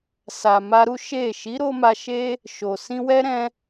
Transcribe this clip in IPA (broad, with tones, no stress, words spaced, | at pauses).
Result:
sa˨ma˧ɾu˦ ʃe˦˨ ʃi˨˦ɾo˧ ma˧ʃe˦ | ʃo˨ sĩ˧wɛ˦ ɾɛ̃˧